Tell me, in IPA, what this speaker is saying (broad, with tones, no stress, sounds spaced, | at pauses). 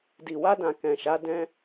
d i˨ w a˧ d ã˨ k ɛ̃˨ ʃ a˨˦ d ɛ̃˧